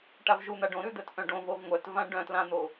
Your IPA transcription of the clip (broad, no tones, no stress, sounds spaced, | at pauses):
ʈ a v ʒ u n̪ a ɖ õ ɾ ʉ d̪ œ t ʔ œ̃ ɖ õ v o v ŋʷ œ t v ã ɖ œ̃ t l ã n̪ o